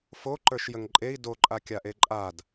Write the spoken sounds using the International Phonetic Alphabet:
f o ǃ ə˞ ʃ j ə ŋ ǃʼ e i̯ d o ǃʼ a kʲ a ʔ e ǃʼ a d

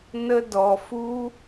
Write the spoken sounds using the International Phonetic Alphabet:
n ə˧ d ɔ˨ f u˦

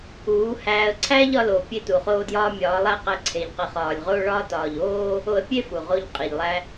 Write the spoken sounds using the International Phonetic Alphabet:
uː˨˦ h æː˧ ə̯ ǀʰ æː˦ ʎ ɒ˧ l o˨ pʲ e˦ t u˨ χ oː˦ d j ɒː˦ mʲ ɒː˨˦ lˠ æ˦ q æ˧ ǀʰ e˨ ʎ q i˨ χ ɒː˨ lʲ ʁ oː˦ ɭ ɒː˦ t ɒː˨ ʎ oː˦ | o˧ ə̯ pʲ e˦ f u˨ ʁ o˦ ʎ qʼ i˨ ʎ lˠ æ˧

